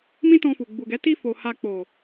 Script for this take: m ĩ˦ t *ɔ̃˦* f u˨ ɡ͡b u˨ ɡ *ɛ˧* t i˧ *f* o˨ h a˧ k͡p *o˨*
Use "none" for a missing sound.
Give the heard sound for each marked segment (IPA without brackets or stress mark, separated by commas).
ɔ̃˧, ɛ˨˦, f, o˨